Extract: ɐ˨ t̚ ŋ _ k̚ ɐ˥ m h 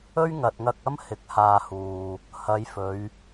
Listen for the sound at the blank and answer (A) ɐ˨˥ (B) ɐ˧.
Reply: B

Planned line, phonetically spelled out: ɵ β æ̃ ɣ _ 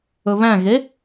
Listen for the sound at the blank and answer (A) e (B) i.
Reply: A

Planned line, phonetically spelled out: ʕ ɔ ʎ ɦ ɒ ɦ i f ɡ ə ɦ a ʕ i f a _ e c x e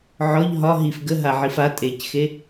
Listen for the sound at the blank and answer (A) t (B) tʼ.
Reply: B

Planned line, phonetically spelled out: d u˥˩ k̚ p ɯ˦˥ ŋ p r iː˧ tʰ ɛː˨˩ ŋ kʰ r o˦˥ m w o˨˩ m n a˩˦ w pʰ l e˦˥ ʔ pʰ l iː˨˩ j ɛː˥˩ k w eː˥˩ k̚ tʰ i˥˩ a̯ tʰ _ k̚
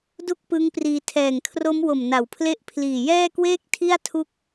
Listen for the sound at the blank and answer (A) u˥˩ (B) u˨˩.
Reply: A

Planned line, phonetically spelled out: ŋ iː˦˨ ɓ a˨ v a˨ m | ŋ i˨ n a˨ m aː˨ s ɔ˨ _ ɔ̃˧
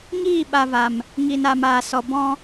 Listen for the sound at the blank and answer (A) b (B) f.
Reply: A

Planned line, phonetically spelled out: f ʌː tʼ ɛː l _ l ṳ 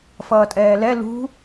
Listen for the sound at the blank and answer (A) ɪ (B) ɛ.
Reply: B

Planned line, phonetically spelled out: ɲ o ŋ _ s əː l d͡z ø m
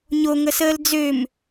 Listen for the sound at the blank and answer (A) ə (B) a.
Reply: A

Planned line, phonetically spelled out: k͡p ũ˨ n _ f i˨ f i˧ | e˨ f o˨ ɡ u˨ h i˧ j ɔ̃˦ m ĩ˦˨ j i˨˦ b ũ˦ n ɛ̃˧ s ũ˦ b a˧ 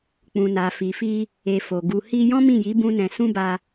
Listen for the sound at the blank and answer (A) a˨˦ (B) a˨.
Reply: B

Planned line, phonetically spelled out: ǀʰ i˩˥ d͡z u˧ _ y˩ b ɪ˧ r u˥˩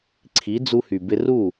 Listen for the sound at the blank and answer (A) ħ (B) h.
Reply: B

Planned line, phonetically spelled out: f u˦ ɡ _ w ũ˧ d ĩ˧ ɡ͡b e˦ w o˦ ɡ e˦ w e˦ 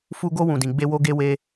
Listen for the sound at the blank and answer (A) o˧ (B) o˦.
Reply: B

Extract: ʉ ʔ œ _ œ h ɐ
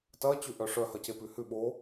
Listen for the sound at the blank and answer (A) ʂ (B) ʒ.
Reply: A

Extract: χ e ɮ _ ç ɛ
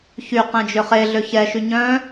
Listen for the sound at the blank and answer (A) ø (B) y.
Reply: A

